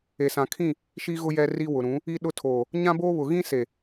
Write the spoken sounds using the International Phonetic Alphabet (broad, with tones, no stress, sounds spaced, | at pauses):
e˨ s ã˨ kʰ ĩ˦˨ | ʃ i˦ ɣ ʊ˦ j ɛ˦ r i˦ w ʊ˨ ɾ ũ˨˦ | i˦ ɗ ʊ˦ tʰ oː˨ | ɲ ã˦ b oː˦ β ʊ˨ ɣ ĩ˦ s e˨